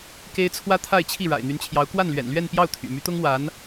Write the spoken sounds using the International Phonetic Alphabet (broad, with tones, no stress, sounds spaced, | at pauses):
k e˥ ɪ̯ t͡sʰ w ä˥ t̪ʰ a˥˧ ɪ̯ t͡ɕʰ i˥˩ ɻ a̰˨˩ ɪ̯ n̪ y˧˥ n t͡ɕʰ j ɑ˧˥ ʊ̯ k w a˥˩ n l ɥ ɛ̰˨˩ n l ɥ ɛ˥˧ n p j ɑ˥˩ ʊ̯ t̪ʰ y̰˨˩ m y˧˥ t̪ ʊ˥ ŋ w a˧˥ n